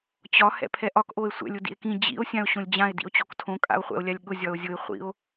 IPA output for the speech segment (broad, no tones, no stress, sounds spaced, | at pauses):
t͡ɕ ɒ h ɛ̰ pʰ ɛ ʔ ɒ k ʔ o e̯ sʷ ɛ̰ lʲ ʊ d ḭ e̯ k ĩ d͡ʑ ḭ o̯ sʲ ã o̯ ɕ õ lʲ d͡ʑ ã e̯ d ḭ o̯ t͡ɕ o k tʰ õ kʼ a̰ o̯ χʷ ɛ̰ o̯ lʲ a lʲ ɠ ʊ zʲ ɒ o̯ zʲ ʊ e̯ χʷ ḭ o̯